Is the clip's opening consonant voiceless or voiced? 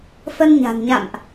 voiceless